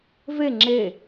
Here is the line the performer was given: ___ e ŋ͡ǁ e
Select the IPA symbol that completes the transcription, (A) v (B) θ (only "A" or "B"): A